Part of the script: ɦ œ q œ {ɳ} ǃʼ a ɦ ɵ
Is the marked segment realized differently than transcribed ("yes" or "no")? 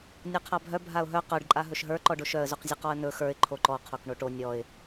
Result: yes